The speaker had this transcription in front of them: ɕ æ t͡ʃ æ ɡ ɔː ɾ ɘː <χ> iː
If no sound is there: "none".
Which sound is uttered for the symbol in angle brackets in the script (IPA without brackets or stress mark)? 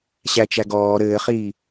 χ